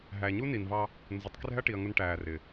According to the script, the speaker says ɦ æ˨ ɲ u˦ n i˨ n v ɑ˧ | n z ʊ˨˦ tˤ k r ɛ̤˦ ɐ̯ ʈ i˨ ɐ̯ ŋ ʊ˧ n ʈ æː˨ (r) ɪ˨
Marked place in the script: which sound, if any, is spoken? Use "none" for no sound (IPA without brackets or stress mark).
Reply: r